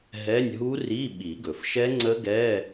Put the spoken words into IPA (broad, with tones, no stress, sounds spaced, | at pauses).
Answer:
ɦ ɛ˧˥˧ nʲ ɦ u˦˥ r i˧˥˧ ɓ i˨˩˦ ɡ ɵ˩ f ʃ ɛ˦˥ ŋ͡ǀ ə˦˥ ɡ ɛ˧˥˧